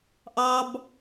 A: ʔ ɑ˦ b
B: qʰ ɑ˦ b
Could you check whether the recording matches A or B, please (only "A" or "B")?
A